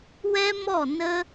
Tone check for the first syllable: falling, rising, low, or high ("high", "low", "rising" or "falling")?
high